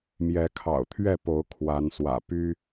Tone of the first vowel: rising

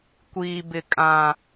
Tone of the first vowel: low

